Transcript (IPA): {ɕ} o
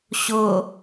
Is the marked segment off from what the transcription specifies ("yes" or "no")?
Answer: no